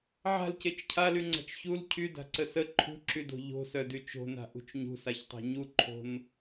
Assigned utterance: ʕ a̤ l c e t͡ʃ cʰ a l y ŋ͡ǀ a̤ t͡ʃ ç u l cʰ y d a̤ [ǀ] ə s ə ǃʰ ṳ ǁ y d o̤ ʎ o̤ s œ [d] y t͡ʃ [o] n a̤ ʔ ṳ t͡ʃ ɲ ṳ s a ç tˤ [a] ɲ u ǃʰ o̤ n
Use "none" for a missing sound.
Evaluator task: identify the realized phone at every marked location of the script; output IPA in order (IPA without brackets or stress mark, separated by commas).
ǀ, d, o̤, a̤